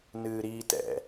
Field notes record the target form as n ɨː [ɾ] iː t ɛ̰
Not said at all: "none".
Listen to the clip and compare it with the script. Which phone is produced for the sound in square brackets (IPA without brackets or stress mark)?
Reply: ɾ